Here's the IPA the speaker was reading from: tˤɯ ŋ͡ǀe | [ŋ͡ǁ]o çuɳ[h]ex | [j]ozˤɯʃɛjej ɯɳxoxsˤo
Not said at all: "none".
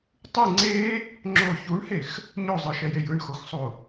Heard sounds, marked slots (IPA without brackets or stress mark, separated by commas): ŋ͡ǁ, h, ɲ